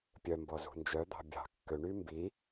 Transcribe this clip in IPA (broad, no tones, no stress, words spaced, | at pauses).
pʲœmbɔ zṳnd͡ʒœd̪ɑ̤ bʲɑ̤ kːøɳy mbi